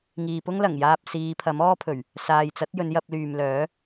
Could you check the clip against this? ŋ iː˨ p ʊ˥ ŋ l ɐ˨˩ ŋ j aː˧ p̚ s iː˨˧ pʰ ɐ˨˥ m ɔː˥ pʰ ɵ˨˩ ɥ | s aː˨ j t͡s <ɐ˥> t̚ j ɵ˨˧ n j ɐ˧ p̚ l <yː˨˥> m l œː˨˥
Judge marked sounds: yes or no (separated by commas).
no, no